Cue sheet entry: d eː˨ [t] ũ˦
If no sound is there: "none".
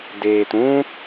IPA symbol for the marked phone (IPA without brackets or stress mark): t